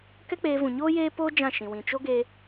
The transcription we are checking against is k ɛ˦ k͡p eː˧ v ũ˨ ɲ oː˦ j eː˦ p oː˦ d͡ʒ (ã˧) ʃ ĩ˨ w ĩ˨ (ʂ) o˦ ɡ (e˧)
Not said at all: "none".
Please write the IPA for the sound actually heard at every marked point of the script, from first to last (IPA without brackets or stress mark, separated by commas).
ã˦˨, t͡ʃ, e˧